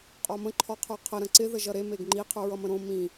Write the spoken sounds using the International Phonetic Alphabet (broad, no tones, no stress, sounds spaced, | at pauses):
qʼ ɔ m ə̃ ǃʰ ɔ qʰ ə˞ qʰ ə ɾ ə̃ ǀ ɪ ð ə ʒ ʌ ɾ e m e ɡ ŋ͡ǃ i qʰ ə˞ ɹ ʌ m ə̃ ɾ õ m ĩ